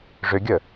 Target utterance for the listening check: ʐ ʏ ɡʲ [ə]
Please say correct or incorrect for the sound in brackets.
correct